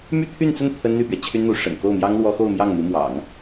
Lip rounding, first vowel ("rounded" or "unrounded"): rounded